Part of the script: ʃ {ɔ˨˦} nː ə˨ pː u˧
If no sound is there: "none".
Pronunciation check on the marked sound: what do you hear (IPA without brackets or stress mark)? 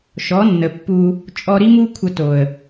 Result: ɔ˨˦